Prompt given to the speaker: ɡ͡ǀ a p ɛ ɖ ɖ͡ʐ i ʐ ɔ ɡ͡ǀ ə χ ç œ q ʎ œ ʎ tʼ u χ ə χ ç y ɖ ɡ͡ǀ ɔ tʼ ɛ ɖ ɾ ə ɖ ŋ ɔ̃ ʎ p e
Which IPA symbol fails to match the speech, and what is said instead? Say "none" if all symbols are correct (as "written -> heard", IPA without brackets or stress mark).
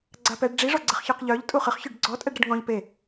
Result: none